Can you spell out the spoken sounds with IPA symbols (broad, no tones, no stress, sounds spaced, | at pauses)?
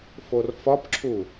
f o r f ɒ p ǁʰ u